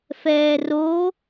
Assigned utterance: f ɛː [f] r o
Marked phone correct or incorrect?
incorrect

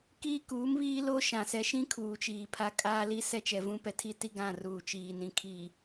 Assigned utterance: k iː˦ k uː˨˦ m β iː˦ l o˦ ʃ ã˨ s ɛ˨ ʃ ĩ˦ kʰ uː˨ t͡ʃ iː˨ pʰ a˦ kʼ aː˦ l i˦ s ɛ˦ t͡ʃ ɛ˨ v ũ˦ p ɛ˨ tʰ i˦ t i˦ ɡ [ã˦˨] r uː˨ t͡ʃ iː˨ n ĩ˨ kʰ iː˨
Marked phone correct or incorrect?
correct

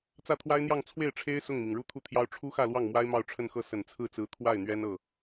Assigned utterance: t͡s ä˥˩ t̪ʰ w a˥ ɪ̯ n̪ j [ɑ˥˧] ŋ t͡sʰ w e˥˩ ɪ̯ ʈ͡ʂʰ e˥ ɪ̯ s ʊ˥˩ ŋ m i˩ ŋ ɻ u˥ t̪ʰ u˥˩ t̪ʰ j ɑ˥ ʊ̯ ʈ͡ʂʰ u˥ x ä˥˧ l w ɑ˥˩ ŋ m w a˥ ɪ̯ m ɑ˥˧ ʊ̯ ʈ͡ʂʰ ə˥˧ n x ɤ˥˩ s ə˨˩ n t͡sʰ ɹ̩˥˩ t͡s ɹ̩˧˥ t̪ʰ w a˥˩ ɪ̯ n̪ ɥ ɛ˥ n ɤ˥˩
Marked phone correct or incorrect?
correct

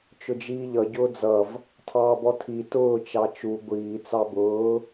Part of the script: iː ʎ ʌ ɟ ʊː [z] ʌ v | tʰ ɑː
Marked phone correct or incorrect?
incorrect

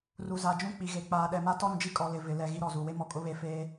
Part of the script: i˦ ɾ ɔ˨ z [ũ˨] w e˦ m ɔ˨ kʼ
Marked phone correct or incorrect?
incorrect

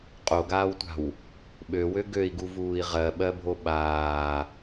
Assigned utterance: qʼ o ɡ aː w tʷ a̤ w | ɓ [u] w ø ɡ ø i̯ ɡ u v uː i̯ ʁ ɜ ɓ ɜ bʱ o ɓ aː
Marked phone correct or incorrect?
incorrect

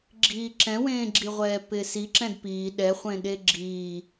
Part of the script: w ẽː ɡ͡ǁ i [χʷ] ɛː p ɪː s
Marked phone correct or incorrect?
incorrect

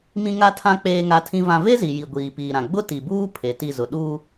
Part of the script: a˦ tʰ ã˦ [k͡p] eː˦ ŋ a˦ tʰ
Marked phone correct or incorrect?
correct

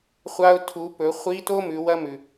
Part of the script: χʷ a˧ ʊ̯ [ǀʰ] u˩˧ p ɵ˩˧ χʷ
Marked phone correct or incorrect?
incorrect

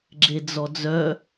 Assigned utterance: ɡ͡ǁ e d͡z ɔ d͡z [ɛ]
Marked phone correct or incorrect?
incorrect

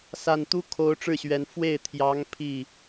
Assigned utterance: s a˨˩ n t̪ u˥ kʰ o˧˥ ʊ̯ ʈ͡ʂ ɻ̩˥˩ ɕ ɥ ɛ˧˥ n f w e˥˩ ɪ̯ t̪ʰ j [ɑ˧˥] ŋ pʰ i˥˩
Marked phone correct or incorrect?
correct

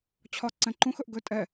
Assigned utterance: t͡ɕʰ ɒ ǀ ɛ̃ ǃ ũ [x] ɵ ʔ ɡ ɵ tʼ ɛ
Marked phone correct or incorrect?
correct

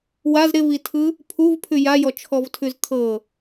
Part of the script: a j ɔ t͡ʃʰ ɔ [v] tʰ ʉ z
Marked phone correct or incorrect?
correct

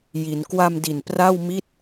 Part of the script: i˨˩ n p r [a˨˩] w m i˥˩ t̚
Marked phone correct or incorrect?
incorrect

